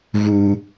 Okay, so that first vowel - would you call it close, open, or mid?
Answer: close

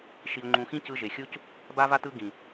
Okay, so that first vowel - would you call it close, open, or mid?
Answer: close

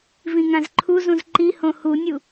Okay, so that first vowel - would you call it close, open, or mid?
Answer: close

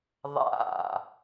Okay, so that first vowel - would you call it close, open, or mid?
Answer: open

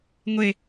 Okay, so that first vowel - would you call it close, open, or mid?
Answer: mid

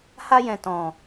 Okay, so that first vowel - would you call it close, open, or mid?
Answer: open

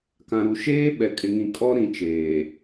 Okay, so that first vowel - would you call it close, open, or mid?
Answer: open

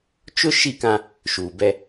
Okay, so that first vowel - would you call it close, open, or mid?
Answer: close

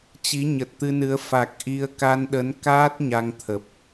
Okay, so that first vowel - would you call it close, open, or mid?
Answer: close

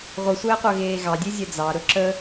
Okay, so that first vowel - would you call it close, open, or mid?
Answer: close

